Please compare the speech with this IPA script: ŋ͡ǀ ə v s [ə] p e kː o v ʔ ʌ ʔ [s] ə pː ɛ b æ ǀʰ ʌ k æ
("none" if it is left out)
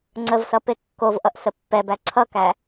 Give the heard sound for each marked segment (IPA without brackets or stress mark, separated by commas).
ʌ, s